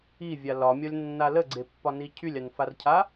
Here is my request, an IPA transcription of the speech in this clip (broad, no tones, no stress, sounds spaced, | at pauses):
i vʲ a l ɒ mʲ ɒ lʲ nː a l ə ɡ͡ǀ e pː ɒ n i cʰ y lʲ a n f a r cʰ a